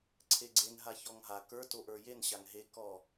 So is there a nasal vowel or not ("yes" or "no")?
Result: no